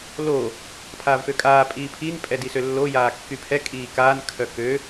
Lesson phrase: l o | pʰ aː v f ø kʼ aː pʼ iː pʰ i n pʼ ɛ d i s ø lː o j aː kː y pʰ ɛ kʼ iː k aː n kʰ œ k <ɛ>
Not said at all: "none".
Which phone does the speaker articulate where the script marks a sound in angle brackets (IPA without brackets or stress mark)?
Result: ø